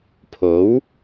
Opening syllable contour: rising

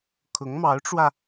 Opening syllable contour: rising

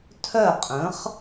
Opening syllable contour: falling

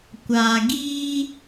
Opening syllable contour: low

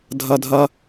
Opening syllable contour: low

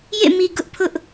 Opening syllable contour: falling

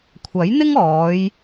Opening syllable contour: rising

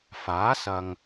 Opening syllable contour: rising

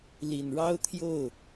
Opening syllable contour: low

